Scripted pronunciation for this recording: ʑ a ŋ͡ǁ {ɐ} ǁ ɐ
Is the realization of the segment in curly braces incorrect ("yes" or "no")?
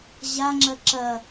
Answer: no